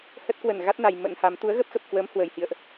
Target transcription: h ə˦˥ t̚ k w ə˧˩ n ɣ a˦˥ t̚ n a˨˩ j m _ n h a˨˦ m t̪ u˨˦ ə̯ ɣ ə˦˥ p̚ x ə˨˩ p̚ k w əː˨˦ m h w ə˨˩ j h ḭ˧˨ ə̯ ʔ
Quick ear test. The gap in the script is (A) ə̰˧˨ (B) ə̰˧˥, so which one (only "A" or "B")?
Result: B